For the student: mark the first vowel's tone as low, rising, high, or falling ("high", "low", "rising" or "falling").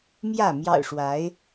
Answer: falling